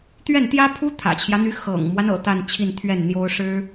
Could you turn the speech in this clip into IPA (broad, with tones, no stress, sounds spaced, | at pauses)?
t̪ ɥ ɛ˥˩ n t̪ j ä˥ pʰ u˥ t̪ʰ ä̰˨˩ t͡ɕʰ j ä˦ n̪ y˧˥ x ɤ̰˨˩ ŋ m w a˦ n ɤ̰˨˩ t̪ a˥˧ n t͡ɕʰ i˥˧ n t̪ʰ ɥ ɛ˥˩ n n̪ j o˥ ʊ̯ ʂ ɻ̩˥